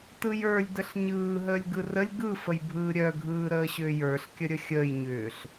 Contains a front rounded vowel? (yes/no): yes